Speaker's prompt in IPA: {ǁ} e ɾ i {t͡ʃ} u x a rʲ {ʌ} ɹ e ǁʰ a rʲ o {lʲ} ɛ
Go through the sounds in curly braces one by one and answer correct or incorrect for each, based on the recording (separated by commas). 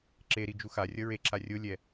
correct, incorrect, correct, correct